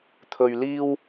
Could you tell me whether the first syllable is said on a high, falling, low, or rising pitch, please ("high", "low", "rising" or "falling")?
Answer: low